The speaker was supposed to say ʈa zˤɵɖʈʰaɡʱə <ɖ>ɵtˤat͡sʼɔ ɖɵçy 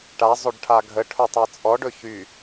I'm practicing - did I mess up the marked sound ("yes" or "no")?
yes